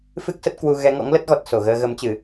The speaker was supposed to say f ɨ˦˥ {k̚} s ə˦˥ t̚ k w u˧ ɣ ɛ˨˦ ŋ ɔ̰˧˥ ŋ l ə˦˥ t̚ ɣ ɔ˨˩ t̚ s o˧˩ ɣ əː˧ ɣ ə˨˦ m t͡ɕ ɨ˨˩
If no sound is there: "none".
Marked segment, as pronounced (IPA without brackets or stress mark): k̚